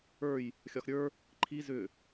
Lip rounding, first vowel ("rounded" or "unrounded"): unrounded